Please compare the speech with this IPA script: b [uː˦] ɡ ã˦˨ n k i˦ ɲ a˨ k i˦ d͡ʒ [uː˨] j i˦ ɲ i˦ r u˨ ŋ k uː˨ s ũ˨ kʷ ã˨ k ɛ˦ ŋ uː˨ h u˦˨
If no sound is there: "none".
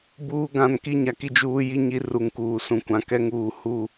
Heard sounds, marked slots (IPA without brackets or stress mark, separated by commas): uː˦, uː˦